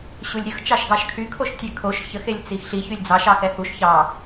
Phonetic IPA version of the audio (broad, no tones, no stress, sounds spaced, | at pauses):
ɕ u lʲ ɾʲ ə x t͡ʃ ɑ ʃ ɡ ɑ ʃ kʰ y kʰ o ʃ tʲ ɛ kʰ o ʃ ç ə x e lʲ t͡s i x ɬ i ç y lʲ d͡z ɑ ʃ ɑ x ɛ h u ʃ ç ɑ